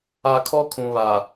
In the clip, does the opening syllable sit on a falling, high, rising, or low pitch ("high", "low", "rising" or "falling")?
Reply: low